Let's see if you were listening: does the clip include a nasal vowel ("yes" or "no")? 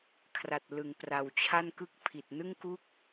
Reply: no